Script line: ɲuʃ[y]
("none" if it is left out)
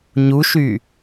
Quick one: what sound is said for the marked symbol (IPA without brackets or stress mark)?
y